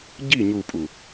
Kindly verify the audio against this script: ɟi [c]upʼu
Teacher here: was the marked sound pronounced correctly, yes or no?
no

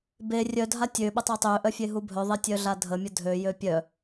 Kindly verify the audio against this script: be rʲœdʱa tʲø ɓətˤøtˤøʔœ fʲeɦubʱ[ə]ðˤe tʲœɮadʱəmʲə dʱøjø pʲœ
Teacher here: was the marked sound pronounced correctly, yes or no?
no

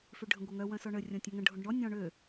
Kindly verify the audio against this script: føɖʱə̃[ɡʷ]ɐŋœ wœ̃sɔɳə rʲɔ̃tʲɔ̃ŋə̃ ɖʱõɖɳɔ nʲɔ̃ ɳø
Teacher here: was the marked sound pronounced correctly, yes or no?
yes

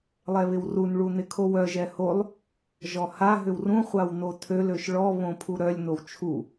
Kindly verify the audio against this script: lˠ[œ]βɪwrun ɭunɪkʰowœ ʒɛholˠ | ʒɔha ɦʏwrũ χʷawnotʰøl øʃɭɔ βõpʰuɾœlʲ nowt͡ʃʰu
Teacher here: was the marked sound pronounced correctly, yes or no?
no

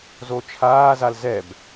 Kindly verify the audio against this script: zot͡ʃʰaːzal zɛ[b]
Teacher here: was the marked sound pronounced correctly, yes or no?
yes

